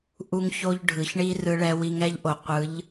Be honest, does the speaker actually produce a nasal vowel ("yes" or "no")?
no